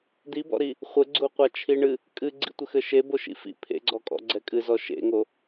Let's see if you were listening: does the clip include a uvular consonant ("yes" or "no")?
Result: yes